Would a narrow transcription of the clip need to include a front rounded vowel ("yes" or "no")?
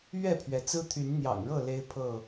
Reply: yes